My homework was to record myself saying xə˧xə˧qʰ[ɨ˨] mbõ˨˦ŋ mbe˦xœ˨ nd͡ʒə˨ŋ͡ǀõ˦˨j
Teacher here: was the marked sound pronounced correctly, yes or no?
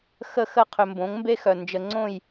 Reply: no